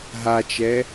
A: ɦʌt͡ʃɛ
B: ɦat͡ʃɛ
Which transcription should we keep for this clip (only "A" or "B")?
B